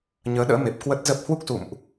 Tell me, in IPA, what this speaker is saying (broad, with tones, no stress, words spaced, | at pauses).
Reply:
ɲəː˨˦ɗə̰ː˧˥me˨˩p̚ kwə˦˥t̚zə˦˥p̚ hwu˦˥k̚sṵ˧˨mʔ